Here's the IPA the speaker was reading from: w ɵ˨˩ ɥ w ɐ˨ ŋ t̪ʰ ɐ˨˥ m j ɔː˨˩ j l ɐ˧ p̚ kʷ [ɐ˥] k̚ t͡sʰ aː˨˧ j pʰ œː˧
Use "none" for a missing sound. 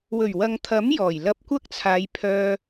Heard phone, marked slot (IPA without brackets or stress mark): ɐ˥